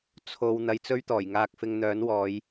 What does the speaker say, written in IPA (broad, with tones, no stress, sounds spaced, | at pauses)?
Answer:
t͡sʰ o˧ w n̪ ɐ˧ j t͡s ɵ˥ ɥ t̪ ɔː˨˩ j ŋ aː˧ k̚ f ɪ˧ ŋ n̪ œː˨˥ n w ɔː˨˧ j